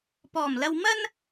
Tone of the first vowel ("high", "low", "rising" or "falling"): low